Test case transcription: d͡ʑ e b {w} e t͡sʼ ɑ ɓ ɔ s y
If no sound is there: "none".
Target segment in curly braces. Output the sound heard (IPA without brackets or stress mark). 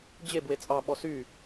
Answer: w